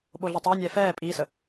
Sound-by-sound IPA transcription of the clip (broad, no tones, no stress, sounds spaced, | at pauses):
ɓ o ɮ ɛ tˤ o nʲ ɛː f ɛː pʼ iː s ə